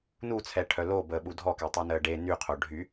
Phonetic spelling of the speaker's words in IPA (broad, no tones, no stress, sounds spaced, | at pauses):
n u t͡sʰ ɛ ʈʰ œ l o b əː ɓ u dʱ ɔ k ɛ tˤ əː n əː ɖ e n y qʰ o ɖʱ y